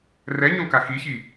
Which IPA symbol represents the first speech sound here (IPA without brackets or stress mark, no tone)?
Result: r